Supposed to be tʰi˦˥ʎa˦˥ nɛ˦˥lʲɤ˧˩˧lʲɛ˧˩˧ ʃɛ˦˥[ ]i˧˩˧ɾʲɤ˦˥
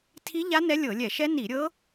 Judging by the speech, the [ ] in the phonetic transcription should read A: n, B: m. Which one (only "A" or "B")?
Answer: A